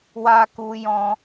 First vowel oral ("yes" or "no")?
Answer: yes